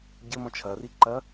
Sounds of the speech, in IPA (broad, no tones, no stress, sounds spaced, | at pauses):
ɟ ɘ m ɔ̃ t͡ʃʰ ɐ r i ǃ ɐ